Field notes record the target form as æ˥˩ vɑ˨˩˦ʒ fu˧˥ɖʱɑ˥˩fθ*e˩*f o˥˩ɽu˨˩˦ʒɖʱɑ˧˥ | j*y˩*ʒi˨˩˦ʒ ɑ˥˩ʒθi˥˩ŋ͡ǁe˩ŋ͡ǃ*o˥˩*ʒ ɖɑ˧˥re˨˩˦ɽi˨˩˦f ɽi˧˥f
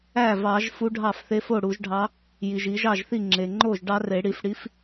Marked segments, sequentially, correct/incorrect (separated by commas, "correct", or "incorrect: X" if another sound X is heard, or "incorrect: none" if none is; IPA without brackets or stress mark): incorrect: e˧˥, incorrect: i˩, correct